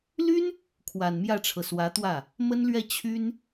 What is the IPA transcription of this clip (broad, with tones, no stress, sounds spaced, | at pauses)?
l y˥ n | kʰ w a˨˩ n m j ä˥˩ ʈ͡ʂʰ ɤ˩ s w ä˧˥ t̪ w ä˥˩ | m ə˥ n l ɥ ɛ˥˩ t͡ɕʰ y˥ n